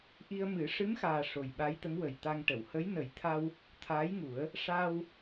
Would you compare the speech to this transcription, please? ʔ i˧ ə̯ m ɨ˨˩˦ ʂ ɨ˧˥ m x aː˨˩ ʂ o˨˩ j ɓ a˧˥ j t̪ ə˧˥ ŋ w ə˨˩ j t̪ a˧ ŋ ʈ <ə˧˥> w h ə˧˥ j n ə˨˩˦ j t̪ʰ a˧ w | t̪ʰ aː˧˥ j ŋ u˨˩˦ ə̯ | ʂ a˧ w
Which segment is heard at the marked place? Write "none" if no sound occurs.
ə˨˩˨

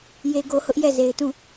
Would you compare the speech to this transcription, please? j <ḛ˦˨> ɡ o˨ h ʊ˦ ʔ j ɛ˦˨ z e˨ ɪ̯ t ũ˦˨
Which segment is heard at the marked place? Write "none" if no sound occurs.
e˨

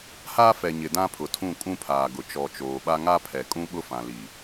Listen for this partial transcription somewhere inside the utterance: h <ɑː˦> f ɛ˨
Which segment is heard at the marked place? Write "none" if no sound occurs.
aː˦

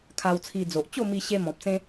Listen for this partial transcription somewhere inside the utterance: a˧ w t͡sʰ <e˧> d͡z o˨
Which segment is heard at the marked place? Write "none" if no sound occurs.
i˧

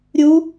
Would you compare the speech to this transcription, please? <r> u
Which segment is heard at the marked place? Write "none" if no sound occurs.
ɾʲ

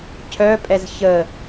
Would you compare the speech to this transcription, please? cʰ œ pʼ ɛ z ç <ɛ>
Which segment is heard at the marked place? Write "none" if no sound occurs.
ə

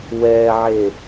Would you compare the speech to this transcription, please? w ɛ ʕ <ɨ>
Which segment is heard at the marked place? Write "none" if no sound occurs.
e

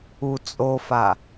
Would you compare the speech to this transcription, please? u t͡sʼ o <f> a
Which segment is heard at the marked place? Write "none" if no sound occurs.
f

